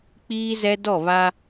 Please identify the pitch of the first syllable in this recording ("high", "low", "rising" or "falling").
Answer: high